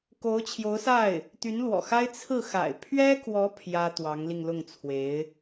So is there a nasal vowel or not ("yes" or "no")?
no